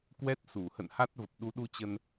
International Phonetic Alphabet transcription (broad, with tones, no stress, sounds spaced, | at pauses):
k w ɛ˦˥ t̚ s u˧˩ h ə̰˧˨ n h a˦˥ t̚ v ə˨˩ p̚ ɗ u˨˦ ɗ u˧ t͡ɕ ə˧ n